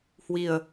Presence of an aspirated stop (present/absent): absent